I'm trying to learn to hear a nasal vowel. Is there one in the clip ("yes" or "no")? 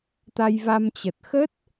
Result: no